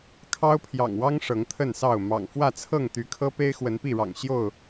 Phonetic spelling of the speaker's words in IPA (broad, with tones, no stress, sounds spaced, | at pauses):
kʰ ɑ˦ ʊ̯ pʰ j ɑ̰˨˩ ŋ w ɑ˦ ŋ ʂ ɤ˨˦ ŋ t̪ʰ ə˥˨ n s ɑ˥˨ ʊ̯ m ɑ̰˨˩ ŋ f w ä˥˨ t͡sʰ ɤ˥˨ ŋ t̪ y˨˦ kʰ ɤ˦ p e˦ ɪ̯ x w ə˨˦ n p i˥˨ ɻ ɑ̰˨˩ ŋ ɕ j o˥˨ ʊ̯